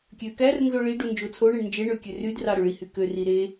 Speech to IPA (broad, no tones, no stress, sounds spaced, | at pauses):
kʲ ø k æ r n z o ɭ i ɖ u n d͡ʒ o t͡sʰ o ɳ e ɳ n d͡ʒ e ɳ ø kʲ ø r y d r ɑ ɾ ø ɭ i h y k ø r i ɾ e